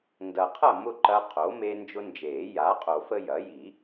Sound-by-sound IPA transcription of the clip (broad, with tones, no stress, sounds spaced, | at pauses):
n d ɐ˨ qʰ ɐ˥˨ m ʊ˥˨ ǃ ɐ˦ qʰ o˩˥ m e˦ n d͡ʒ ʊ˦ n d͡ʒ eː˨˩˦ j a˩˥ qʼ o˨˩˦ f ə˦ j ɐ˩˥ j i˨˩˦